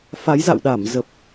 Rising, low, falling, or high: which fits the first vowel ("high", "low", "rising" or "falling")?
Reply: rising